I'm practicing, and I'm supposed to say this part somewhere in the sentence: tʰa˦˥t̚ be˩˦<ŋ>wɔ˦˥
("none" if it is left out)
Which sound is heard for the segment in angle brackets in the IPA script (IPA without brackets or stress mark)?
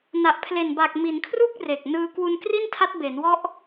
n